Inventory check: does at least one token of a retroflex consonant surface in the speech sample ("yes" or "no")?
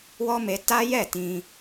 no